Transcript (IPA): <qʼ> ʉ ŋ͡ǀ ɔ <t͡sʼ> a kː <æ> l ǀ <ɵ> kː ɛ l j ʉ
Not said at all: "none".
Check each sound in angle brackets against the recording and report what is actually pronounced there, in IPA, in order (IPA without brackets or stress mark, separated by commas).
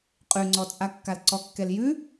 qʼ, t͡sʼ, a, ɔ